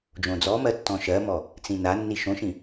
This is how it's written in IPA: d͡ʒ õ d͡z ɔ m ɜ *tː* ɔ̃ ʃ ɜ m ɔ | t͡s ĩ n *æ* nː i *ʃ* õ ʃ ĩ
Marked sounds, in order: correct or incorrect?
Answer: correct, incorrect: a, correct

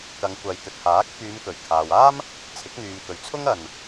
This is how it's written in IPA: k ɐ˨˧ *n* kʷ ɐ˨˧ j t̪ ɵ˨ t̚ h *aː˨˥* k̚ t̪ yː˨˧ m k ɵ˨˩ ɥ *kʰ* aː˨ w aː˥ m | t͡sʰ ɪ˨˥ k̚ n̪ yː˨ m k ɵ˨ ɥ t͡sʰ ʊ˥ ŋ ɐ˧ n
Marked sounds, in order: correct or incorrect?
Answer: incorrect: ŋ, correct, correct

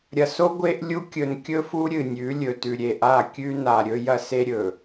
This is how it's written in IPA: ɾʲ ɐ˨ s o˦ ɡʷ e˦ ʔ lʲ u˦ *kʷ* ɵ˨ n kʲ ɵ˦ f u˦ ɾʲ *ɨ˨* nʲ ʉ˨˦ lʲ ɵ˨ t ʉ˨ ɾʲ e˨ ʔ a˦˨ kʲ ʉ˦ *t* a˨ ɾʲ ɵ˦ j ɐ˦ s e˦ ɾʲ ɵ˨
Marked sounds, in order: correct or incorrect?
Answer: incorrect: kʲ, correct, incorrect: n

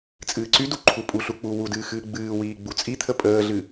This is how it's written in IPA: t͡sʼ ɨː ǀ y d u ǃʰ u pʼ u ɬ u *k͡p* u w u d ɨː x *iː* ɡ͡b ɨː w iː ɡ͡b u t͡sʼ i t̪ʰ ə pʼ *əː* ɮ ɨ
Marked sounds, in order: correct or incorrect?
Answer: correct, incorrect: ɨː, correct

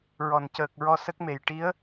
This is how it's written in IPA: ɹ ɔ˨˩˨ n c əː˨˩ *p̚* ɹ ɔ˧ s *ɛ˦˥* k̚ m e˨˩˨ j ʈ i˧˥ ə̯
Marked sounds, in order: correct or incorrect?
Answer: incorrect: k̚, incorrect: ə˦˥

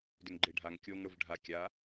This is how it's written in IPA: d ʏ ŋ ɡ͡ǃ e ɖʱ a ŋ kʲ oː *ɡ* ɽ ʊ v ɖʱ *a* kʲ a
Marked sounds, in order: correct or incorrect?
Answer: incorrect: ŋ, correct

